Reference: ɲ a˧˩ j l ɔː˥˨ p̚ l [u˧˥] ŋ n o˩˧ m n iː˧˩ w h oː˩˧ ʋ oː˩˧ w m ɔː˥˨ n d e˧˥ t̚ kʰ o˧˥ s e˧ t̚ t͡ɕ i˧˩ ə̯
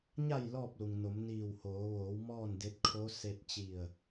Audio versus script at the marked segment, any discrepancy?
yes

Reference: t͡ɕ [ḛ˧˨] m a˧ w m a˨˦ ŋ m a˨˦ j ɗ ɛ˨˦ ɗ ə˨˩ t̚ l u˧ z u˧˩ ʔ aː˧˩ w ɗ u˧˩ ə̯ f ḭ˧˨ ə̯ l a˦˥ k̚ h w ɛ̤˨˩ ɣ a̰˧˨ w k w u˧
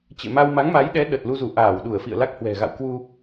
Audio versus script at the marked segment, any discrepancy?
no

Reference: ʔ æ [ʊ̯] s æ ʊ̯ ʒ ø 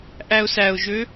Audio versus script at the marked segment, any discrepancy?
no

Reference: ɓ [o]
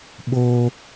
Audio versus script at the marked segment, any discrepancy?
no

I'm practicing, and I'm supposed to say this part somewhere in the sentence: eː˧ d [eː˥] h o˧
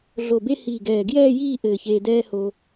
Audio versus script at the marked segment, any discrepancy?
yes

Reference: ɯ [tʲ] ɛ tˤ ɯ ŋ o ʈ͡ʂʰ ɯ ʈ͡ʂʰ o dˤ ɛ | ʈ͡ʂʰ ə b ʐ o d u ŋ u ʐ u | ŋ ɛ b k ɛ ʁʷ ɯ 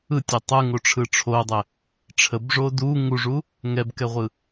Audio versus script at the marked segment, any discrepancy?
no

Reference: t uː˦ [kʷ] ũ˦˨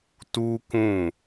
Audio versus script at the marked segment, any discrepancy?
yes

